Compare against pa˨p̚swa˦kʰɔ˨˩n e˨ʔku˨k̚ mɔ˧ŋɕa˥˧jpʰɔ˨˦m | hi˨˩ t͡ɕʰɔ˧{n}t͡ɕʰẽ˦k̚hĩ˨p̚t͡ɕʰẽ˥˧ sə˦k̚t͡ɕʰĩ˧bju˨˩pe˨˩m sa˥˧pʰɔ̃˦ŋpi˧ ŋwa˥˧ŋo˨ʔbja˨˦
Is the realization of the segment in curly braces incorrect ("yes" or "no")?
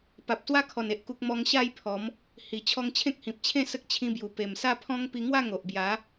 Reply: yes